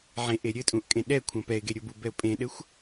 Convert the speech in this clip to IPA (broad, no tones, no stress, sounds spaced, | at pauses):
ʕ ẽ ʔ e ɾʲ ɘ tʼ ũ ʔ kʼ ẽ ɗ ɛ kʷʰ ɐ̃ p ɛ ɪ̯ ɡ e ɾʲ o b u b ɛ ʊ̯ pʼ ẽ ɗ ɘ xʷ